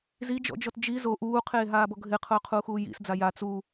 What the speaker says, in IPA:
zid͡ʒɔ̰d͡ʒɔt d͡ʒi zo ʔuːqʰeːɦaːbɔ ɡʱɪqʰʊːqʰuːxuː jḭsd͡za ja t͡su

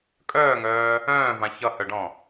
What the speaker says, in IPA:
kʼœːŋœː | œ̃ːvã çʌhœɖɔ̃

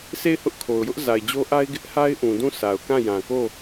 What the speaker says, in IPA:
sʰe˦˨ɪ̯hʊ˦ʔkʰo˨ʊ̯jʊ˦ʔ za˨ɪ̯d͡ʑo˦ʔa˦ɪ̯ ɡɪ˦ʔha˦ɪ̯ʔũ˨ dũ˦˨sʰa˨ʊ̯kã˦˨ jã˨ko˦˨

